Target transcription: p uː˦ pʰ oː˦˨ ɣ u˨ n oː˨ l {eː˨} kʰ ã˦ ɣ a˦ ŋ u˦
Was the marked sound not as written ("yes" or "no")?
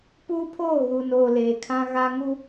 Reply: no